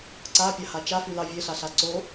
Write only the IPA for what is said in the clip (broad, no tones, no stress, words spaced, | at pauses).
ǀapʲaha t͡ʃafylɑ vʲeɬaɬa ǀo